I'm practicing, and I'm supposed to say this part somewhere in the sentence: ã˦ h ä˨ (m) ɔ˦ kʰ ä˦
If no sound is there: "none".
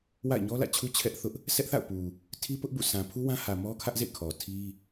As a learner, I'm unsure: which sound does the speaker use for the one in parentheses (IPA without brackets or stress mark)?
m